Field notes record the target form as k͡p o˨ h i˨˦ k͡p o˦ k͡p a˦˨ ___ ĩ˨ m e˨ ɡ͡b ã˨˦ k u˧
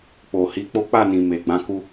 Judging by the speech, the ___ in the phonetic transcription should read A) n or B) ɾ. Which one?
A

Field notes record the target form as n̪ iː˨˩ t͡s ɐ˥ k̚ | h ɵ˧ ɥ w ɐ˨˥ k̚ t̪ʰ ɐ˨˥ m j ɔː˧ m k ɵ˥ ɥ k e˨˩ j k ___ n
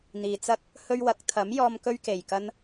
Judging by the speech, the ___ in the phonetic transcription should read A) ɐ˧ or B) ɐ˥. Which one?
B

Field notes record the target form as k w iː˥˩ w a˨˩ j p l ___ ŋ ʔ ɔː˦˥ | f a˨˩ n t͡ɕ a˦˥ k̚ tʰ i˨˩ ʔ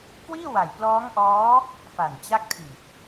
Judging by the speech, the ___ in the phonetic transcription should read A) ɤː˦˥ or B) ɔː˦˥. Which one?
B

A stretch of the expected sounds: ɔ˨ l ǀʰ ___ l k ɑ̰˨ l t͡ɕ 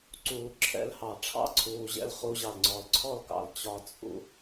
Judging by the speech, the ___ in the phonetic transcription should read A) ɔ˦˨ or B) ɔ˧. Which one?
A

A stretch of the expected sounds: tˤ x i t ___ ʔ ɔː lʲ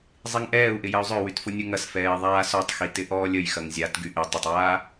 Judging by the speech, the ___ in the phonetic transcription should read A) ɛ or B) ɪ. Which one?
B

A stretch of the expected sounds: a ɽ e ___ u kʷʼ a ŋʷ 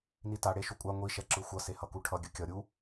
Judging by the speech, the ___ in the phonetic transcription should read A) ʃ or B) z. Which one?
A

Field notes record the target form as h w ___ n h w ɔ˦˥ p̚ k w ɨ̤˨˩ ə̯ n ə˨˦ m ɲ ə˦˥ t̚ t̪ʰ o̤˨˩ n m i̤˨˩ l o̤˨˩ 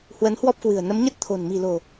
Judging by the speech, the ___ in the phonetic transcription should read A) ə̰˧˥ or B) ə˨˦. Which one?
B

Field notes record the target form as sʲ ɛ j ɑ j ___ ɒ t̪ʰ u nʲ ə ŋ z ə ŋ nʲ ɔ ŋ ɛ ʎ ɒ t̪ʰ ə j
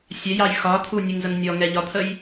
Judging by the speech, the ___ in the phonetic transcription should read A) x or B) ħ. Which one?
A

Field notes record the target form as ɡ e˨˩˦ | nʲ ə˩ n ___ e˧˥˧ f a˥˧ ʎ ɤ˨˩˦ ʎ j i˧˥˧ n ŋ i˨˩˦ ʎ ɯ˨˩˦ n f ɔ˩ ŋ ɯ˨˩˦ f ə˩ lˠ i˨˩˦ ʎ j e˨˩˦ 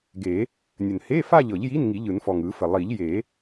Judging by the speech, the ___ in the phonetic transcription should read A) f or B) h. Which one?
B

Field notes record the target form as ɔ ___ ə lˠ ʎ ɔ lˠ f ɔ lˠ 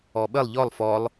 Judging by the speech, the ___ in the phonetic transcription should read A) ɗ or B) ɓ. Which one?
B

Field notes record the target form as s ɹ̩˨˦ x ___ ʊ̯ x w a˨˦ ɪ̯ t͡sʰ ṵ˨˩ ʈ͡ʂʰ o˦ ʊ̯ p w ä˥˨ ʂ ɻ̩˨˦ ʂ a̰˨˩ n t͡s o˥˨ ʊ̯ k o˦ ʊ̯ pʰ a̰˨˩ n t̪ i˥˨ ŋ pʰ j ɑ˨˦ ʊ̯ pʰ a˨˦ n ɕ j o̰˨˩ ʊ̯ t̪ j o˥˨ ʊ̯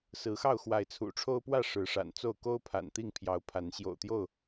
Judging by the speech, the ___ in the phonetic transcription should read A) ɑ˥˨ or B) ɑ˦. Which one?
A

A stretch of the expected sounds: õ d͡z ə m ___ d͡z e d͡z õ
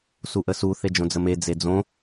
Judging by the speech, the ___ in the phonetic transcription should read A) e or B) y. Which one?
A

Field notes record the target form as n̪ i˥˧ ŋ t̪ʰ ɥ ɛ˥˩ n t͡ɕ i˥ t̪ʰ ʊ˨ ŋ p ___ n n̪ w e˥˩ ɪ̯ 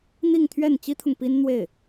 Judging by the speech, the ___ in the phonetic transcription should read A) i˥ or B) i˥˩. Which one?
A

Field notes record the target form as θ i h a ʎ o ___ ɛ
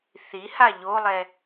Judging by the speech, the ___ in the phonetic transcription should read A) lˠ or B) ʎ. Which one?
A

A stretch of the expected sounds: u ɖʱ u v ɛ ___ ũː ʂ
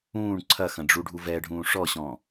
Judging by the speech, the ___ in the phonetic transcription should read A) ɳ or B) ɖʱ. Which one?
B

